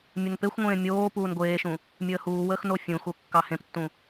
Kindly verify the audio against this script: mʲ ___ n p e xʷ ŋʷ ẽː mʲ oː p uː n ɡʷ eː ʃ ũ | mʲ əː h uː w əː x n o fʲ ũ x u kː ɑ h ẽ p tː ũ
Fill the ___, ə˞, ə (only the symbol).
ə